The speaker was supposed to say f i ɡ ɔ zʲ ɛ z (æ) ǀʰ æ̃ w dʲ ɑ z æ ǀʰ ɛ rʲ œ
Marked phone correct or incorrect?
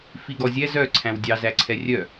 incorrect